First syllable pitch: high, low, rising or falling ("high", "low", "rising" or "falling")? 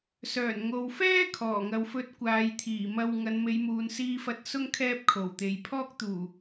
low